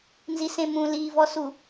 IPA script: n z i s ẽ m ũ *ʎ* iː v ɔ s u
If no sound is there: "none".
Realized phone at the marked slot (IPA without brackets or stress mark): l